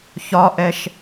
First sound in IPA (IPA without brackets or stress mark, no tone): ç